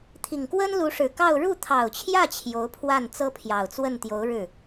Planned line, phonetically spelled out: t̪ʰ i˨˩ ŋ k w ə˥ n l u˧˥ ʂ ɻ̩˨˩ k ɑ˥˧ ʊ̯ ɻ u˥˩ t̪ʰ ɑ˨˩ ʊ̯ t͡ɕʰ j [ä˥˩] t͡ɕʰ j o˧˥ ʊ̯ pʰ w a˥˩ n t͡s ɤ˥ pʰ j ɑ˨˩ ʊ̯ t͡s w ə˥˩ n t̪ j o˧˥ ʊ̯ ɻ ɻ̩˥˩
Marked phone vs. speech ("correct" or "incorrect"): correct